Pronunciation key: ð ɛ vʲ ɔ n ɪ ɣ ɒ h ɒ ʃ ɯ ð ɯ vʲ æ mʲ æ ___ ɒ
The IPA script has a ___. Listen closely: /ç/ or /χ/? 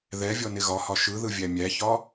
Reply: ç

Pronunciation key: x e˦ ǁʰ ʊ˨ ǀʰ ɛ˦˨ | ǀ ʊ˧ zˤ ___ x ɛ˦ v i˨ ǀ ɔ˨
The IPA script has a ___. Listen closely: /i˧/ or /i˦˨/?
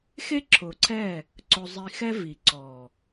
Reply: i˧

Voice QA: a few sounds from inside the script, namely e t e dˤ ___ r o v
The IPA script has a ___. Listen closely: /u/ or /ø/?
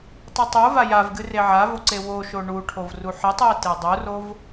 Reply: u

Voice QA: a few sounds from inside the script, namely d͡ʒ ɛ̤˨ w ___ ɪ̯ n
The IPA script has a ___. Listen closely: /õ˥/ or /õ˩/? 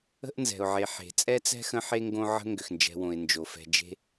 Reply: õ˩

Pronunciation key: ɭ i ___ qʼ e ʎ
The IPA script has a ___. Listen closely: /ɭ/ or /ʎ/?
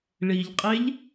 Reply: ʎ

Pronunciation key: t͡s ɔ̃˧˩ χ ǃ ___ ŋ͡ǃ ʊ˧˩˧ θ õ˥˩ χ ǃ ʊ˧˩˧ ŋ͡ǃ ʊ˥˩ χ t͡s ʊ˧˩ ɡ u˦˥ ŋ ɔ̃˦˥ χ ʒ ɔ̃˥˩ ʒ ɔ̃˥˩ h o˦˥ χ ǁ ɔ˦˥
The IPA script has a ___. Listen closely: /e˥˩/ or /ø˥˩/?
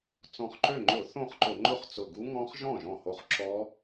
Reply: ø˥˩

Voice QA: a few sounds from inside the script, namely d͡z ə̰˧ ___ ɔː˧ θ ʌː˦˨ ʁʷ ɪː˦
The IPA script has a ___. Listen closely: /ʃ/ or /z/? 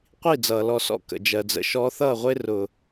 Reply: ʃ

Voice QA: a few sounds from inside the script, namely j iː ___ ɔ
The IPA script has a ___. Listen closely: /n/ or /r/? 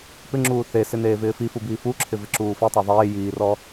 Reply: r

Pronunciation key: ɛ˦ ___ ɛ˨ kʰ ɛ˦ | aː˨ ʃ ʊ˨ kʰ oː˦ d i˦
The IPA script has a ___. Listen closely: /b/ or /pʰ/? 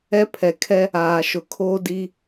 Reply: pʰ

